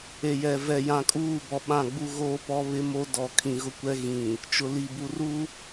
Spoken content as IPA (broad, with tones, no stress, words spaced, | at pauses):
e˨jɛ˨ vɛ˨jã˨kʼuː˦˨bɔ˨ ɓã˦˨ ɡ͡bu˦ɣoː˦pɔ˦ βɪ˦mo˦dɔ˨ kʰĩ˨ɣʊ˦kʷɛ˦ ɣĩ˨ | t͡ʃʊ˨li˨bu˨ru˦